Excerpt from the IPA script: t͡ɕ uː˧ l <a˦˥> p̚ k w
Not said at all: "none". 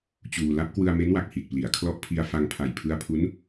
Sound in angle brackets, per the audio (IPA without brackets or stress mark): a˦˥